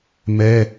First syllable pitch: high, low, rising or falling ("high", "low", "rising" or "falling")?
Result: high